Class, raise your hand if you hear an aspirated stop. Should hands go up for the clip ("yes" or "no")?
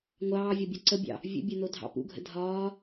no